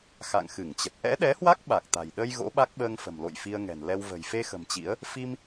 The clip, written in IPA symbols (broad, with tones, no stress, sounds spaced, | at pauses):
x a̰˧˨ ŋ x ɨ˧˩ ŋ t͡ɕ ə˨˩ t̚ ʔ ɛ̰˧˥ ɗ ɛ˨˦ h w a˦˥ k̚ ɓ a˨˩ k̚ t̪ a̤˨˩ j ɗ ə˧ j ɣ o̰˧˥ ɓ a˦˥ k̚ ɓ əː˧ ŋ f ə̤˨˩ m l o̰˧˨ j f i˧ ə̯ ŋ ɛ̤˨˩ n l ɛ˧ w v ə̤˨˩ j f e˧ x ə̤˨˩ m t͡ɕ ḭ˧˥ ə̯ | f i˧ m